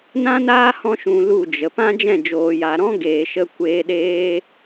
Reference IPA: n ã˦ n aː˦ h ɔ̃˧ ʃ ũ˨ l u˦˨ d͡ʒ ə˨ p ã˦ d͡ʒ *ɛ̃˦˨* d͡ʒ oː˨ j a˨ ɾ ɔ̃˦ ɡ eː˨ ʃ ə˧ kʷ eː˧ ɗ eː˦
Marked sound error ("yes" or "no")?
no